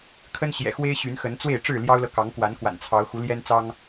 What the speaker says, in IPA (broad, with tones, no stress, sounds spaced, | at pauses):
kʰ ə˦ n ɕ j ɛ̰˨˩ x w e˦ ɪ̯ ɕ y˨˦ n x ə˨˦ n t͡s w e˥˨ ɪ̯ ʈ͡ʂ ɻ̩˥˨ l j ɑ˦ ʊ̯ l ɤ˨ k ɑ˨˦ ŋ k w a˨˦ n k w a̰˨˩ n t͡sʰ ɑ˨˦ ʊ̯ x u˨˦ l j ɛ˦ n t͡s ɑ˦ ŋ